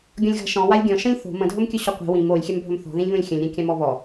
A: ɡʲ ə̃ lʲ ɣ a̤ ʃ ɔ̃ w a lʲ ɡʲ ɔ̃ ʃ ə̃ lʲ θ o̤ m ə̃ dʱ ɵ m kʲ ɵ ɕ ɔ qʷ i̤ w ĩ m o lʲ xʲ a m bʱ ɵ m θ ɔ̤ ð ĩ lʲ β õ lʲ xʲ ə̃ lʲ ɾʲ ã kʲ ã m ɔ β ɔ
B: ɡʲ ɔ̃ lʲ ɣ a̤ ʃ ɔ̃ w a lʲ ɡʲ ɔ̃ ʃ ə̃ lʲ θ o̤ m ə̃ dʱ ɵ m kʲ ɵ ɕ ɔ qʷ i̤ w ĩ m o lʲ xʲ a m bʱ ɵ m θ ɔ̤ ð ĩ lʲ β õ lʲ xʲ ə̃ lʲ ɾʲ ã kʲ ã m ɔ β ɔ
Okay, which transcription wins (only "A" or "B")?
B